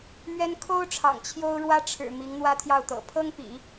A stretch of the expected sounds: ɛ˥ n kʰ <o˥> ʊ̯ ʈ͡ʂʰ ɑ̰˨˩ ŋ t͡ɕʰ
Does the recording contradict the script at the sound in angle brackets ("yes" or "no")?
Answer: no